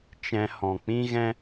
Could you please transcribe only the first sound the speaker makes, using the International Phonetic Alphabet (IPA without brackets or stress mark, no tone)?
t͡ʃ